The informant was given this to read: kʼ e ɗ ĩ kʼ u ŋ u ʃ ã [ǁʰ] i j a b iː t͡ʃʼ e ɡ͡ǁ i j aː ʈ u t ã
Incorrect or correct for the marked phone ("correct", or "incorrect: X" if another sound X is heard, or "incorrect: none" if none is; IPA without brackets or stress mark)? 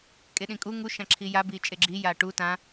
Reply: correct